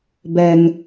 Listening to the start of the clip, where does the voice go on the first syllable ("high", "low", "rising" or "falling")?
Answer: low